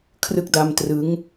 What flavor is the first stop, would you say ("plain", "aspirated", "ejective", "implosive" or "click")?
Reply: aspirated